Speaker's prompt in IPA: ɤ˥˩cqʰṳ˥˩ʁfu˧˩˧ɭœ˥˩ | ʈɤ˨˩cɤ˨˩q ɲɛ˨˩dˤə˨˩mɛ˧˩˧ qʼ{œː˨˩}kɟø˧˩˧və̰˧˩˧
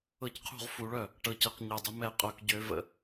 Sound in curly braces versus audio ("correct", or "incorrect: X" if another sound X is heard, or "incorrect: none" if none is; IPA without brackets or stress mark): incorrect: œ˨˩